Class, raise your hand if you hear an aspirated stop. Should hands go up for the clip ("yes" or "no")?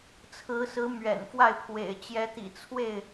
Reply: yes